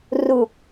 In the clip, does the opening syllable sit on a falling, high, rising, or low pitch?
low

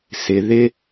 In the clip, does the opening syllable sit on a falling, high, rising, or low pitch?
low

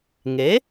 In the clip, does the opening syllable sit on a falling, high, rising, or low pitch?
rising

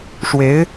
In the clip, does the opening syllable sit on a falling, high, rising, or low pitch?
rising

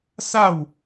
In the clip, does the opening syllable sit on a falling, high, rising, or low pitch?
falling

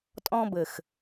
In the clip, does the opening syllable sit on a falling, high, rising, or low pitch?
high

